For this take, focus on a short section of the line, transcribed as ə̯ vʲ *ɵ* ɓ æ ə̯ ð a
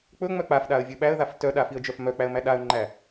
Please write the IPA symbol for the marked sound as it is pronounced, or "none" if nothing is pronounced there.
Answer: ɵ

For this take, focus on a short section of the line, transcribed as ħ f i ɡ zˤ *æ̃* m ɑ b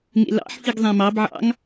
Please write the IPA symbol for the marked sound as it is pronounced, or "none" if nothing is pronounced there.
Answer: æ̃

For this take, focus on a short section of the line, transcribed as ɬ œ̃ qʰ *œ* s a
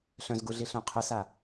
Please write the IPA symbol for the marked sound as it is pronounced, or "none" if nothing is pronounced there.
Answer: ə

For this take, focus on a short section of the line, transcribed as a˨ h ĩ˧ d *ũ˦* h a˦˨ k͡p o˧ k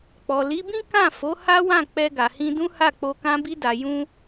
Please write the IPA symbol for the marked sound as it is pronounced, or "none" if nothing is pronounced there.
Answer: ũ˦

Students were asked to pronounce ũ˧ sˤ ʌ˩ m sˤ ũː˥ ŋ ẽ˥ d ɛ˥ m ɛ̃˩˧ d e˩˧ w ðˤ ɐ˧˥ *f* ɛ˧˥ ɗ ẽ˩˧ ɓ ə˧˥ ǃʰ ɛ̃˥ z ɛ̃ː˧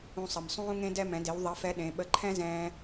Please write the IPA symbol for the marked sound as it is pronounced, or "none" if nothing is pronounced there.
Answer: f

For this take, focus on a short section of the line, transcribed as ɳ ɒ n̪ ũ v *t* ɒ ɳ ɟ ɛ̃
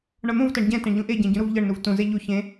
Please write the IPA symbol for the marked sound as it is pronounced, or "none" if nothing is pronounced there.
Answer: t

